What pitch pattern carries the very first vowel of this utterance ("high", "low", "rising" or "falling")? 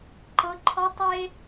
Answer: high